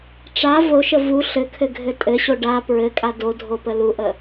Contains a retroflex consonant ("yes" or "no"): yes